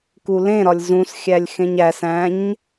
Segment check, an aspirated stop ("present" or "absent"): absent